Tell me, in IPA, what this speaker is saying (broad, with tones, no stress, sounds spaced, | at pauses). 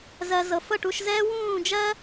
z ɜ˩ z ɤ˩ f ɤ˥˩ ʈ u˥˩ ʃ z ɛː˥ w ũː˥˩ d͡ʒ ɜ˥